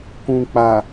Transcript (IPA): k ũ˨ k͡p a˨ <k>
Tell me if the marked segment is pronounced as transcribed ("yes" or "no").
no